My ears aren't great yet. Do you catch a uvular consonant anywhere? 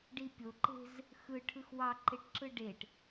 no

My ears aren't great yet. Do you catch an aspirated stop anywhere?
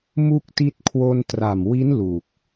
yes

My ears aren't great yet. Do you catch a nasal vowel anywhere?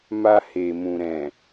yes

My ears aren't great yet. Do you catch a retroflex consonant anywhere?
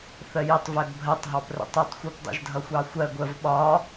no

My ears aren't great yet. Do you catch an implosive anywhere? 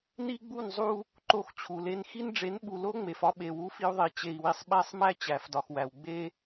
yes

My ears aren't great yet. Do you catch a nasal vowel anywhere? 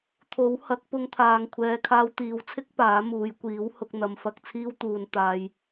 no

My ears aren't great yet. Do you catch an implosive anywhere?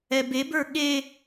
yes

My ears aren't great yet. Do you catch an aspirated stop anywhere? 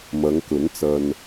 no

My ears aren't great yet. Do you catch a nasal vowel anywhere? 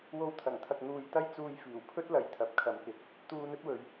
no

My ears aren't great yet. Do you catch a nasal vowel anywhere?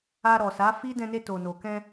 yes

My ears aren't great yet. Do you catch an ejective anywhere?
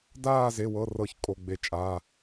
yes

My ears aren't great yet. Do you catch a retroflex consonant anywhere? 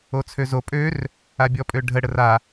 yes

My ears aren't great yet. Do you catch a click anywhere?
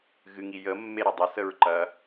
yes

